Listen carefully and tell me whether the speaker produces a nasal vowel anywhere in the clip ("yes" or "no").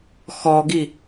no